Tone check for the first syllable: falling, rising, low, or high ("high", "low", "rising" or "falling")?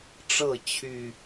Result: falling